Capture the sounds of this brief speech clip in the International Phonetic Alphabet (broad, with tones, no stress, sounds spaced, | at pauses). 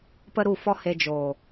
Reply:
p ə˦ ɾ u˦˨ f ɔ˦ h e˧ d͡ʒ o˨